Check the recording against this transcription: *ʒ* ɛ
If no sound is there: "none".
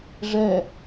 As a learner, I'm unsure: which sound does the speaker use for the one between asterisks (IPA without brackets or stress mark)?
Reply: ʐ